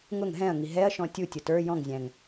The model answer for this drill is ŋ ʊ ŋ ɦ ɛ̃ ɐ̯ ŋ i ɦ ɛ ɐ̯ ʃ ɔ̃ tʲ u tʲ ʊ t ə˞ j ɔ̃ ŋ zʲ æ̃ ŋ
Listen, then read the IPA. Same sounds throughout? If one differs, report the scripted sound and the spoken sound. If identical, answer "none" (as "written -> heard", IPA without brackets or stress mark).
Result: none